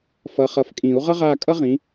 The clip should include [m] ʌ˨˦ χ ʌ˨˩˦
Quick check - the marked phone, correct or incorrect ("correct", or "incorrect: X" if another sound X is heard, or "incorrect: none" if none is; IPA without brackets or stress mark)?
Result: incorrect: f